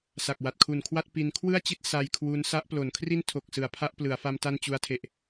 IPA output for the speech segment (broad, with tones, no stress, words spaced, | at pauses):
sa˨˩k̚wa˨˩t̚kʰu˨˩nkʰwa˥˩t̚ pi˧n kʰwɯ˥˩a̯t͡ɕi˦˥t̚ sa˧jkʰwu˦˥n sa˦˥ʔplo˩˦nkʰri˥˩ntʰo˨˩k̚ sɯ˨˩a̯pʰa˥˩ʔ plɯ˩˦a̯fa˧m ta˥˩nt͡ɕu˦˥a̯tʰe˨˩ʔ